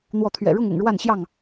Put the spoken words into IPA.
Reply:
n̪ w ɔ˨˦ t̪ʰ ɥ ɛ̰˨˩ ɻ ʊ˥˨ ŋ ʊ̰˨˩ ŋ ɻ w a˥˨ n ɕ j ɑ˥˨ ŋ

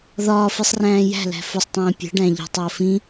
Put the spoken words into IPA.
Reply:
ð ɒː f i sˤ r æ̃ː j æ̤ l æ̤ f ʊ sˤ tˤ ĩː pʲ ə̤ ɖ æ̃ ʎ ə̤ tˤ əː f ĩ

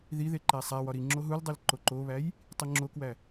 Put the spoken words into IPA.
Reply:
ð i ð e ǃ æ sˤ æ w ɒ ɾ i ŋ͡ǁ o ɦ u l dˤ e l ǃ o ǃ o β æ j | tˤ i ŋ͡ǁ o k w æ

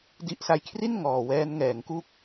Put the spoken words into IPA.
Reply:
d i˦˥ ʔ s a˦˥ j kʰ r i˥˩ n ŋ ɔː˨˩ w ɛː˦˥ n ŋ ɛː˩˦ ŋ k u˥˩ k̚

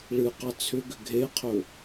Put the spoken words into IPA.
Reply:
ɭ ɨ q ɑ t͡sʰ ʏ ɡ ʏ ɡʱ e qʰ ɵ

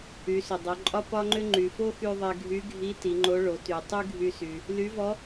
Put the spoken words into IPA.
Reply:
y˩˧ s ʏ˩ dˤ o˩˧ ǃʼ ɒ˥ p ɒ˥ ŋ͡ǃ ʏ˥ ŋ͡ǃ y˩ f o˥ x y˧ ðˤ e˧ ɡʱ y˧˥ ɡʱ i˧˥ t i˩˧ ŋ͡ǃ o˧˥ ɭ o˩˧ t y˩ tˤ y˥ ɡʱ y˧ s y˩ | l y˧˥ v ɔ˧˥

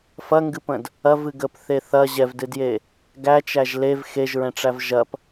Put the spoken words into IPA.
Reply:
f ɐ ŋ ɡ ɨ p ə̃ d | ɐ v ɨ ɡ ə p θ e θ ɐ ʑ ɛ v d ɨ d j e | ɡ æ t͡ʃ æ ʒ l e v x e ʒ ɹ ɛ̃ ʈ͡ʂ æ v ʒ ɐ p

